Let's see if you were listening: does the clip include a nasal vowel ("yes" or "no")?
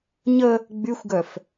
no